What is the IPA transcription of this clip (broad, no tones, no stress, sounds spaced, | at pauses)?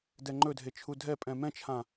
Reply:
d ɛ ŋ͡ǃ ɵ dʱ e t͡ʃʰ u dʱ ɛ pʼ ɛ̃ m ɛ̃ t͡ʃʰ ã